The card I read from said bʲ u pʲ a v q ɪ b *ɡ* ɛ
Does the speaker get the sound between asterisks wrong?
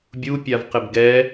no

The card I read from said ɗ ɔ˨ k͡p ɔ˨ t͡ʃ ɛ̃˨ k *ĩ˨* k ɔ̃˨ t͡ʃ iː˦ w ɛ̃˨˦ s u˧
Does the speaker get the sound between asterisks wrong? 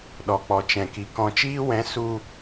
yes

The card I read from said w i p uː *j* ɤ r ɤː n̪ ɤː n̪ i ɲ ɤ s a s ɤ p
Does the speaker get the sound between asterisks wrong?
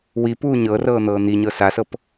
yes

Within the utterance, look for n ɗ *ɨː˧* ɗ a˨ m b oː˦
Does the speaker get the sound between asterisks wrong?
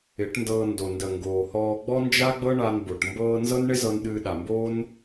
no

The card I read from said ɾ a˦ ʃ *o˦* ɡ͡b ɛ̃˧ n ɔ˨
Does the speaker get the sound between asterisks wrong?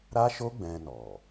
no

